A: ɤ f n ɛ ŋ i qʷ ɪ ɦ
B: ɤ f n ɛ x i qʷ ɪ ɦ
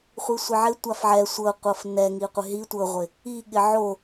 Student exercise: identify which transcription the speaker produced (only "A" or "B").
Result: A